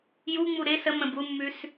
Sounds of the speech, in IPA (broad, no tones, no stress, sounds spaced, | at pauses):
j u ŋ͡m u ɾ ɪ s ə m ə̃ b u mː ʉ s